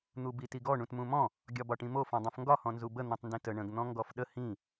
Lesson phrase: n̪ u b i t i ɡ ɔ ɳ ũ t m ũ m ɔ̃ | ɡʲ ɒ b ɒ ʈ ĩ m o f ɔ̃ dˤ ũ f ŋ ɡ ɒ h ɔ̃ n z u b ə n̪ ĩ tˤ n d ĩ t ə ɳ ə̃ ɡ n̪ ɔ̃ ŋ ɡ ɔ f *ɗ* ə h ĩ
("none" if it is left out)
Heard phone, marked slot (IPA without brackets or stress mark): ɗ